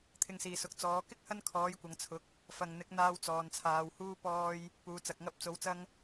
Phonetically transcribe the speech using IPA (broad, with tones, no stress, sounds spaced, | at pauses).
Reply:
t̪ʰ ɪ˧ ŋ s iː˨ s ʊ˨˥ k̚ t͡s ɔː˨˥ k ɪ˥ k̚ h ɐ˥ n kʰ ɔː˨˥ j kʷ ɐ˨˧ ŋ t͡sʰ ʊ˨˥ k̚ | f ɐ˨ ŋ n̪ ɪ˨˥ k̚ n̪ aː˧ w t͡s ɔː˨ n t͡sʰ aː˨˧ w h uː˥ p ɔː˧ j | p uː˨ t͡s ɐ˨ k̚ ŋ ɐ˧ p̚ t͡s o˨˧ w t͡s ɐ˥ ŋ